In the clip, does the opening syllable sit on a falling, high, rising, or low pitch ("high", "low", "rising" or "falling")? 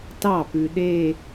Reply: falling